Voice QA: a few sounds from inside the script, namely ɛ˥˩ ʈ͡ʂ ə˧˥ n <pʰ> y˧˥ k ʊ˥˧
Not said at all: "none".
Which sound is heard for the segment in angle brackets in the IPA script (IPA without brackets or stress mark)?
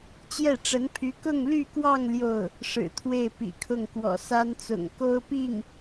pʰ